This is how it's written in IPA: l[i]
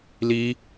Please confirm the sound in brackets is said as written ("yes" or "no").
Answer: yes